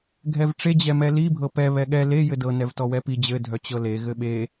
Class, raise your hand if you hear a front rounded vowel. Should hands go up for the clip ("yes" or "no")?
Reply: yes